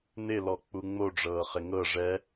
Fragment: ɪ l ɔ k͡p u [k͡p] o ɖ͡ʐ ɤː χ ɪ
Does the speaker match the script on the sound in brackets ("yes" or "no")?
no